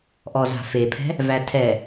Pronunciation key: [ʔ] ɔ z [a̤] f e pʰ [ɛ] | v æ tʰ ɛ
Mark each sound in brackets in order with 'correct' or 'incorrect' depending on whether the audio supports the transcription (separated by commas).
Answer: correct, correct, incorrect